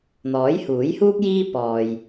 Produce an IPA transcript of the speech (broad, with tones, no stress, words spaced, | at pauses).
n̪ɔː˨˥jhuː˨˥jhuː˥k̚ jiː˥ pɔː˨j